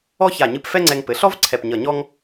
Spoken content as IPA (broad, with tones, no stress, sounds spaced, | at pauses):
ɔ˥ ç a˧˩ ɲ ɨ˧ p f ɛ˥ ŋ͡ǀ ɛ˧ ŋ p ɘ˩˧ ɬ ɔ˥ v ǀʰ ɛ˧˩ p ɲ ʌ˧˩ ɲ ɔ˥ ŋ